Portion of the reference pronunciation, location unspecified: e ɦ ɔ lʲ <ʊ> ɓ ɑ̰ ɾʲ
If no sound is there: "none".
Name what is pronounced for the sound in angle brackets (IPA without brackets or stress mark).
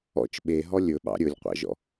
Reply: ɵ